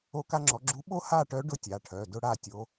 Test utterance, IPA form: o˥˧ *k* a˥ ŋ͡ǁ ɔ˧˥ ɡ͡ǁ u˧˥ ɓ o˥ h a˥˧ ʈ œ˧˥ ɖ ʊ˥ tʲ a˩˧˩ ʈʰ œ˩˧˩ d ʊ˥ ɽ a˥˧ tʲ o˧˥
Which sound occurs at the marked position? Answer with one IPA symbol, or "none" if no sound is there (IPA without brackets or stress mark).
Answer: k